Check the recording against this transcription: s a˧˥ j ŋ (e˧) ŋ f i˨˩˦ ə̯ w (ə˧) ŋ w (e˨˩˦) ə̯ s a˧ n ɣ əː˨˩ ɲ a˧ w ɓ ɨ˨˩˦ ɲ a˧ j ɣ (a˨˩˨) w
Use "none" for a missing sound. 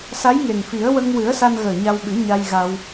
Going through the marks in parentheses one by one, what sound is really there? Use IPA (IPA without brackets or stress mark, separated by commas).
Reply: e˨˩, ə˧, ɨ˨˩˦, a˧